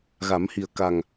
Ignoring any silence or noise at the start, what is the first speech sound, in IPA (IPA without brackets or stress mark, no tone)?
ɣ